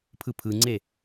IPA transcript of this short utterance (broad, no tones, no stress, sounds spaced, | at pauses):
pʰ ɯ pʰ ɯ ŋ͡ǀ e